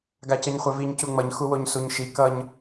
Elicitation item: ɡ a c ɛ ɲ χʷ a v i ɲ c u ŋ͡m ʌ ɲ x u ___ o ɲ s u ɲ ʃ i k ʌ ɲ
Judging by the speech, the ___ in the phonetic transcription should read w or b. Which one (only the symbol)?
w